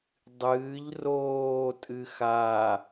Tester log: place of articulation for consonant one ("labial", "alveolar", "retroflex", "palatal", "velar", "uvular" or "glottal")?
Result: alveolar